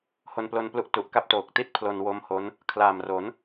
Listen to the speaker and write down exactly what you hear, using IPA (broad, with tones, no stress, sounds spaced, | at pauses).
h o˧ n p l o˧ n p l u˦˥ ʔ t u˨˩ ʔ k a˥˩ p̚ t oː˨˩ k̚ t i˥˩ t̚ pʰ l o˧ n w o˦˥ m h o˦˥ n | kʰ l aː˨˩ m r o˩˦ n